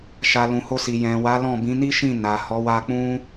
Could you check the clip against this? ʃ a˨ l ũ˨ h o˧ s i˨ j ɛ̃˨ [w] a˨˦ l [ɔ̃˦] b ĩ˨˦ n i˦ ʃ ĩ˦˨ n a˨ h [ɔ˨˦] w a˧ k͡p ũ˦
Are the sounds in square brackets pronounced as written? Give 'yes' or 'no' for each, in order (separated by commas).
yes, no, yes